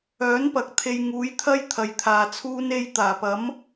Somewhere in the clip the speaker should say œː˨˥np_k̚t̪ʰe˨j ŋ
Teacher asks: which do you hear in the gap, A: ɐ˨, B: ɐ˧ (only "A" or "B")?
A